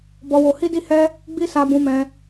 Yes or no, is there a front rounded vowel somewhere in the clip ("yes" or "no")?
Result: no